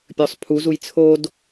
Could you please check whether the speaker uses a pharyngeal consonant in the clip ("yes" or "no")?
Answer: no